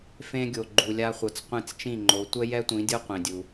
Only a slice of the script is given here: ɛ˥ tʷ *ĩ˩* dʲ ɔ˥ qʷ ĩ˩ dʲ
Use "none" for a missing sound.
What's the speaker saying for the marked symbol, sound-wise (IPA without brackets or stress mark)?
ĩ˩˥